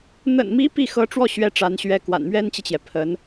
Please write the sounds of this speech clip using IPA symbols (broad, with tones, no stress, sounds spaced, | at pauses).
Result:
n̪ ə̰˨˩ n m i˧˥ p i˥˩ x ɤ˧˥ ʈ͡ʂ w ɔ˥˩ ɕ ɥ ɛ˧˥ ʈ͡ʂ a˧˥ n ɕ ɥ ɛ˥ k w a̰˨˩ n m ɥ ɛ˥ n t͡ɕ i˨ t͡ɕ j ɛ˩ pʰ ə˧˥ n